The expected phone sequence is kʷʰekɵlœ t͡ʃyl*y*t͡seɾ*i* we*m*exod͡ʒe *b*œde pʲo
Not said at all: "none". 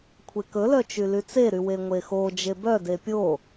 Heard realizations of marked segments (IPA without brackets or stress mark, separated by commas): y, y, ŋʷ, b